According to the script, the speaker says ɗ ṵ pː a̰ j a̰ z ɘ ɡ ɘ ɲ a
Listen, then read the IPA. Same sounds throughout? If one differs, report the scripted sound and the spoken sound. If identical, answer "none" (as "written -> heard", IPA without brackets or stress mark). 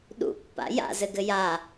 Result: ɲ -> j